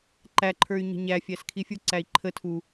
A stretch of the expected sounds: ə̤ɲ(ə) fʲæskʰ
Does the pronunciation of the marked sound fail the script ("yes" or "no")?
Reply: yes